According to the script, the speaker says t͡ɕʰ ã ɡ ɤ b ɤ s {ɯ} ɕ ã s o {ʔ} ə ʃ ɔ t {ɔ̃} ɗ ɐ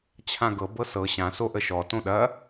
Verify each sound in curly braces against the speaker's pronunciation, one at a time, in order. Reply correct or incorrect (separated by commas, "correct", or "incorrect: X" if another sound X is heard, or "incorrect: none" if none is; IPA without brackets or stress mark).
incorrect: ɤ, correct, incorrect: õ